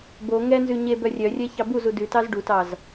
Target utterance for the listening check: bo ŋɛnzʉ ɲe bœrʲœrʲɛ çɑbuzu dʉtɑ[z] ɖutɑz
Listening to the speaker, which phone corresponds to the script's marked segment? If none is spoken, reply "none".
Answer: z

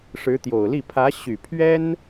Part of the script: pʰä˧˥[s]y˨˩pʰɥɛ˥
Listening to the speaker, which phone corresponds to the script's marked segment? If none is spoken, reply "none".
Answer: ɕ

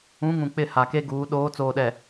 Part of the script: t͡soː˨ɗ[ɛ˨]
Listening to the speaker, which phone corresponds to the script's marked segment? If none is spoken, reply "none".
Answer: ɛ˨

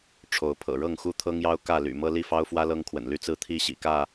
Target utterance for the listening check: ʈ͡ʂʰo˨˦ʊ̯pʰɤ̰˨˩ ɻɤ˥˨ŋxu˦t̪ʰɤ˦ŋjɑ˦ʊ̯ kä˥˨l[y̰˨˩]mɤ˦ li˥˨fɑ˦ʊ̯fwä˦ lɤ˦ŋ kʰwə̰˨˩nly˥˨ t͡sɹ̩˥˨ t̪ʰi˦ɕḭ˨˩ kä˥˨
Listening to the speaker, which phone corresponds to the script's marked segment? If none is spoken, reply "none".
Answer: y̰˨˩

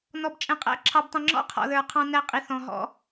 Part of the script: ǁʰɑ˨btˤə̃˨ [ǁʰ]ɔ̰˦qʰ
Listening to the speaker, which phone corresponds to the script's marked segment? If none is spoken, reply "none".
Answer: ŋ͡ǁ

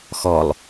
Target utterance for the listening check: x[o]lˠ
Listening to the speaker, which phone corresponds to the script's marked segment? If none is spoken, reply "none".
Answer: ɔ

